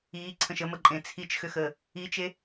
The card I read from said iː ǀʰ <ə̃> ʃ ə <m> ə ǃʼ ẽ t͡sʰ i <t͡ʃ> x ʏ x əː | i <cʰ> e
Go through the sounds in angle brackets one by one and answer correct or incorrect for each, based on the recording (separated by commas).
correct, correct, correct, incorrect